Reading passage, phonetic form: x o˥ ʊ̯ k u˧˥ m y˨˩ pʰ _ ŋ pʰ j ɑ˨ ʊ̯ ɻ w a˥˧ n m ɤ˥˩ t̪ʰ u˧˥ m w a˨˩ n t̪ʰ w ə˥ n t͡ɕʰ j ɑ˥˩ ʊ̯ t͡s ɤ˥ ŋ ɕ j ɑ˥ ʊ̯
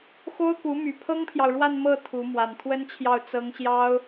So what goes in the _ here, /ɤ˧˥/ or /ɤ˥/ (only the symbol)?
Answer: ɤ˥